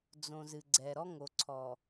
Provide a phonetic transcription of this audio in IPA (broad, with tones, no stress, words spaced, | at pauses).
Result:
d͡zõ˨ zɨ˨ɡ͡ǀɛ˨ ɾɔ˦ŋo˨ ǀʰɔ˨